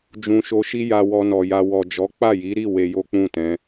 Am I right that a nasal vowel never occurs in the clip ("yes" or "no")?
no